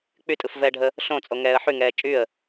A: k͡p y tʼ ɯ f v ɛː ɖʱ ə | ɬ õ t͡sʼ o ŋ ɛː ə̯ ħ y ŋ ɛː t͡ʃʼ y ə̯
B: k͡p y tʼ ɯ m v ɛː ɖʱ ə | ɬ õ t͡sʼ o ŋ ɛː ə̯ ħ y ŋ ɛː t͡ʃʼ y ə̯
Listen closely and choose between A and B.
A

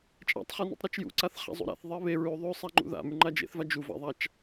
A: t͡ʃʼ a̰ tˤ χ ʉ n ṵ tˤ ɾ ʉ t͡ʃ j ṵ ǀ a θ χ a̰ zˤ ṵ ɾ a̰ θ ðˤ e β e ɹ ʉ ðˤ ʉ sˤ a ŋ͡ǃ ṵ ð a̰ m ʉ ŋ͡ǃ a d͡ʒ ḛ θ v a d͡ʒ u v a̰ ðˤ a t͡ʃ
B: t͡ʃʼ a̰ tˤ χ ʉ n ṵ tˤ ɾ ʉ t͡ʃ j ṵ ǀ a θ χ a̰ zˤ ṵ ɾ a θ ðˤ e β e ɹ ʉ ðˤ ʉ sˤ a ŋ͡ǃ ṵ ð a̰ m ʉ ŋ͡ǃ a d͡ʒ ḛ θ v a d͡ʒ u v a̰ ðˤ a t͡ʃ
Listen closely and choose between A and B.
A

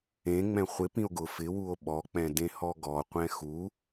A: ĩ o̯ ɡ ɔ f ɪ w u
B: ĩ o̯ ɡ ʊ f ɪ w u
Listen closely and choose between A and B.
B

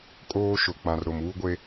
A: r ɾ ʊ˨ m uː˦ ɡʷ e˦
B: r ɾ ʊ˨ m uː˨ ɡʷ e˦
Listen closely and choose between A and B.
A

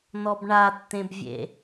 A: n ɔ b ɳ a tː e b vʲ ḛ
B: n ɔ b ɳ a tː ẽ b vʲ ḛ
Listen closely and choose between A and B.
B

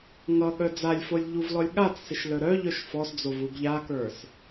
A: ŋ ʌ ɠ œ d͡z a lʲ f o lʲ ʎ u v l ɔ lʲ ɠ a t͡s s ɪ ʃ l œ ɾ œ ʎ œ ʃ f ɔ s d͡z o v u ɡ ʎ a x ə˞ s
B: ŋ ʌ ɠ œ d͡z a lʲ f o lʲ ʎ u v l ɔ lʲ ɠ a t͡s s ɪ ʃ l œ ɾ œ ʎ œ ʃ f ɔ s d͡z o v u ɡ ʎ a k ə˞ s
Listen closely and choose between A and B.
B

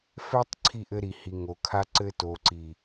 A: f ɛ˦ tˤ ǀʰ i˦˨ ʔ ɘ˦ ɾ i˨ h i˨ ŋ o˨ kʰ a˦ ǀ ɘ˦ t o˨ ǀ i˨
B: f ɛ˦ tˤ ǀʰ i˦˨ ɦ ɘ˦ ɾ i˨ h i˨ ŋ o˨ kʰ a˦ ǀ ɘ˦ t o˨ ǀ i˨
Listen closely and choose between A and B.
A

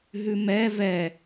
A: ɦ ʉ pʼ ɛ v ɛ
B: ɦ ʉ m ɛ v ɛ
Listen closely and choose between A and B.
B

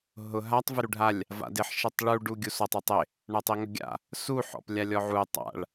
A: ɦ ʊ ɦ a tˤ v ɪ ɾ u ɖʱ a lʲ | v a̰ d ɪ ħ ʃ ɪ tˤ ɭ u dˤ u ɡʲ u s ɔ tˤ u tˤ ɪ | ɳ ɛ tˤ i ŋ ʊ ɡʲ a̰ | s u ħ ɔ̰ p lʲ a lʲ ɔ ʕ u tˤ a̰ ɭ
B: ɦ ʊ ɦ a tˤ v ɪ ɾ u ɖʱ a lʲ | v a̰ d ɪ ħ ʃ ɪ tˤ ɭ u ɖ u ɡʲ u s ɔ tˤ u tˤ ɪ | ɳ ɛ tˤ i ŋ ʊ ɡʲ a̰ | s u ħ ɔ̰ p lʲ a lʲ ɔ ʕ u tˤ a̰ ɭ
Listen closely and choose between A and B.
B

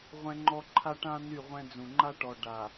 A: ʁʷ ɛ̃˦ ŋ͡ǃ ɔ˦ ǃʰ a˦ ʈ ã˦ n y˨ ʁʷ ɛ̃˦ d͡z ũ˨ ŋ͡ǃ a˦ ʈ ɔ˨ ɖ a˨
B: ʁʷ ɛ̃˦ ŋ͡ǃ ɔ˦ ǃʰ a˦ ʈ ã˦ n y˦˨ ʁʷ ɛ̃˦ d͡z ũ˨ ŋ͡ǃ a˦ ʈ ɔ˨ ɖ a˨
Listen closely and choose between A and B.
B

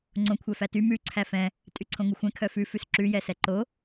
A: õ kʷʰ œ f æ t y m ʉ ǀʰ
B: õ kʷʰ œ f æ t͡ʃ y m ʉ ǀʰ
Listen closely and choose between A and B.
A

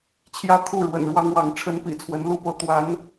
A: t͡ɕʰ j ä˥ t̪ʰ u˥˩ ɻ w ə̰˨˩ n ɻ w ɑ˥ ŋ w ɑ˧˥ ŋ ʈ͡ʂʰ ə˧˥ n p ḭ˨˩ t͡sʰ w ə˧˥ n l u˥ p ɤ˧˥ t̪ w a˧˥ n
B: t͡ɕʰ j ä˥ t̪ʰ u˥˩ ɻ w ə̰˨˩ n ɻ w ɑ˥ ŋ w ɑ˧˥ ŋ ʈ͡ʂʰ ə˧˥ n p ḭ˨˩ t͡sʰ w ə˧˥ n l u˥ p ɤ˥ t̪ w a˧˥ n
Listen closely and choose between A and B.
A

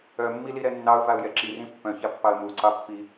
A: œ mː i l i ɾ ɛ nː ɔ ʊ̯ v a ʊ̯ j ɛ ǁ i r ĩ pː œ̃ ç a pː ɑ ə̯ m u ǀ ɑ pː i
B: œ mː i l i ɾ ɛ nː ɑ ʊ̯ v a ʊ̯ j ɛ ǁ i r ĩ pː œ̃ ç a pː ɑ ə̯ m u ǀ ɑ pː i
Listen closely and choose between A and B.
B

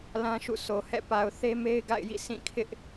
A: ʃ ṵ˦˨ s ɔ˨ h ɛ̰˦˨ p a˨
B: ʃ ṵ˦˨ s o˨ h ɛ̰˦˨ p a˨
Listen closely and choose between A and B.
B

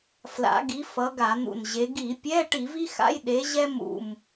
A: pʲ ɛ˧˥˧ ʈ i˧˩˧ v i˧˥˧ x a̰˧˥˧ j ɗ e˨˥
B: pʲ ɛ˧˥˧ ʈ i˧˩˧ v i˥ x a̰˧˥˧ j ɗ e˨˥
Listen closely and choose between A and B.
B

